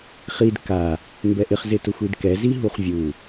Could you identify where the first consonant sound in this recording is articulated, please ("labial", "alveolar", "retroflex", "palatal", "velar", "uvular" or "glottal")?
uvular